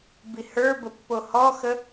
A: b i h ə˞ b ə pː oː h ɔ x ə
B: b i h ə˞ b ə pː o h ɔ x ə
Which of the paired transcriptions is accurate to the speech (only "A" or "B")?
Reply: B